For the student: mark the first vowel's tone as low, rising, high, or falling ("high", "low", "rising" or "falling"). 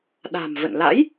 low